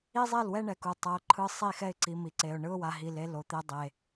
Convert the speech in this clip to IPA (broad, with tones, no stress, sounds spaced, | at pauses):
i˦ zˤ e˦˨ l w ɛ˦ ɳ ɛ˨ k u˨ tˤ ʌ˨˦ ʊ̯ ǃʰ ɯ˦ sˤ i˦˨ x ɛ˦ ɪ̯ ǀ i˨ m i˨ ǀ e˨ ʊ̯ ɳ ɯ˦ ʊ̯ w a˨ ɦ i˨ l e˦ l o˨˦ t̪ e˦ dˤ e˨